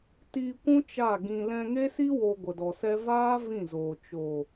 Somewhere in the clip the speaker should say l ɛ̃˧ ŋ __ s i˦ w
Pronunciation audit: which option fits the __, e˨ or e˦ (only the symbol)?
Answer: e˦